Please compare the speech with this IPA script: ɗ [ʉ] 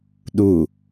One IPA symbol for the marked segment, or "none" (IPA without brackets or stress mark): u